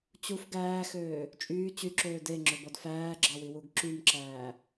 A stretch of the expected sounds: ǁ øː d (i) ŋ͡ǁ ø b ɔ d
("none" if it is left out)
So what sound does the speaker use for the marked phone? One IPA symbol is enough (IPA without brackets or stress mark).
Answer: e